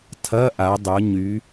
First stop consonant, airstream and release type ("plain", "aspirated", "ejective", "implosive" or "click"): aspirated